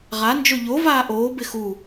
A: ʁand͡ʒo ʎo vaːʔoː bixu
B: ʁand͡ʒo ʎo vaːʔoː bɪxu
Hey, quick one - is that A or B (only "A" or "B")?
B